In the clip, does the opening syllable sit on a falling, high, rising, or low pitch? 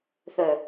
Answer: low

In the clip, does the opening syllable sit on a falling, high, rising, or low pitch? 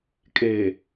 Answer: low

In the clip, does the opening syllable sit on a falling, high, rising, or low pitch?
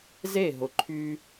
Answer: falling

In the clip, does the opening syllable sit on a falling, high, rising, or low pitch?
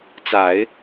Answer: low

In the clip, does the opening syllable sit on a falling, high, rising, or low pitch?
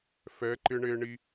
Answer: rising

